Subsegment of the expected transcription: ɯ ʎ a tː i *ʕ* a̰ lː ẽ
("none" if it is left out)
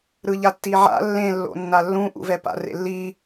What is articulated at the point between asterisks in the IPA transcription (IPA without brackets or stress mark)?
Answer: ʕ